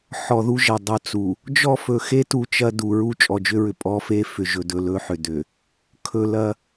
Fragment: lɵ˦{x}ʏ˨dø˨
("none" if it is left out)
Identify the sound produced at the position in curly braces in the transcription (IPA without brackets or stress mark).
ħ